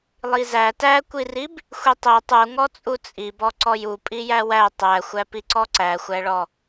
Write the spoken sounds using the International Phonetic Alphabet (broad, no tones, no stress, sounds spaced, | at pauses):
lˠ i z æ t æ kʷ i r i b | xʷ i tˤ i tˤ u ŋ ɔ t͡sʼ u t͡sʼ i b ɔ ǀ ɔ j u pʼ i j æ w æ tˤ æ xʷ æ p i ǀ ɔ ǀ æ xʷ æ ɭ ɔ